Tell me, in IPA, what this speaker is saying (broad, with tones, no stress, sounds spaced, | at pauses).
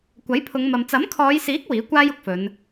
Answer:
kʷ ɐ˨˥ j pʰ ʊ˨˧ ŋ m ɐ˨ m t͡s ɐ˨˥ m kʰ ɔː˨˧ j s iː˨˥ k̚ w iː˨˥ kʷ aː˥ j ʊ˨˥ k̚ f ɵ˨˧ n